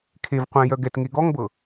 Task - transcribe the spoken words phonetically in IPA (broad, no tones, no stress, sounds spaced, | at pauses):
kʰ e v qʷ ɛ̃ j œ ɡ ɛ t ŋ e ɡ ɔ ŋ b ɤ